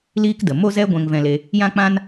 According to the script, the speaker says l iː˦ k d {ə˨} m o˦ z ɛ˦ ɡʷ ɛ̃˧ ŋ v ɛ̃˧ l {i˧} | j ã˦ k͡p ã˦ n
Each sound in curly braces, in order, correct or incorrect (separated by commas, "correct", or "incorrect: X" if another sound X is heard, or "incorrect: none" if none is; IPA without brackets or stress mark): correct, incorrect: e˧